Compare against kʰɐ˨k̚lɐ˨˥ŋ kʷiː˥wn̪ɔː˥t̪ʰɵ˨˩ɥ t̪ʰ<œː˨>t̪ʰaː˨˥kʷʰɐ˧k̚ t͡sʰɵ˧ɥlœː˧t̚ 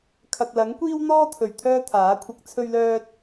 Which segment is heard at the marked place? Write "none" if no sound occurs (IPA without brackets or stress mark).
œː˥